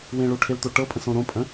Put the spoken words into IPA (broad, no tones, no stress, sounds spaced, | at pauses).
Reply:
w ẽ ɭ o ʈʰ e l t̪ o ʈ ɤ pʼ ə̃ s õ ɾ õ pʼ ə̃